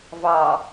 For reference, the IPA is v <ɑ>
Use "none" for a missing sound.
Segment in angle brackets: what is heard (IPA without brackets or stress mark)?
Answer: ɑ